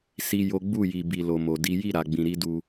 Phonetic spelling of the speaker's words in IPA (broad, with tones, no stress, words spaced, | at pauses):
si˦jo˦ ɡ͡bu˦˨ ji˨bi˨ lo˨mo˨di˨˦ ji˦˨ɾa˨ɡ͡bĩ˨ ɾi˨˦du˧